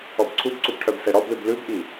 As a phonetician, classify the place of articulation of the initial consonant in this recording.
labial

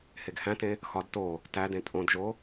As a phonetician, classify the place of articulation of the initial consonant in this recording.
glottal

